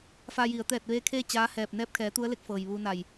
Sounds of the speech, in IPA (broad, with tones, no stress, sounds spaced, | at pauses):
f a˧ j i˩˧ ə̯ t̪ ɛː˧˩ t̚ ʋ eː˧ kʰ eː˥˨ t͡ɕ aː˧˥ h ɛː˧˩ p̚ n ɛː˧ p̚ kʰ ɛː˩˧ t̪ u˧˥ ə̯ l e˧ k̚ f ɤː˩ j ʋ uː˧ n a˧˩ j